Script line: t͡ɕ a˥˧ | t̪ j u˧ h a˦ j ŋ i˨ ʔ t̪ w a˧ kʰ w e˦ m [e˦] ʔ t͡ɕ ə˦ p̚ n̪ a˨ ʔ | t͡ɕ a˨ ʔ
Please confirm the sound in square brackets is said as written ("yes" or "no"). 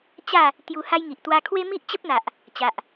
no